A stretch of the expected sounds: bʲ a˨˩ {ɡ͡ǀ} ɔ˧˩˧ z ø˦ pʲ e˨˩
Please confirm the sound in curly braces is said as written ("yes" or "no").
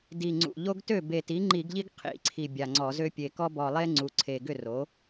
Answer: no